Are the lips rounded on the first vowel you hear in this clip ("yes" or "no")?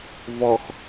yes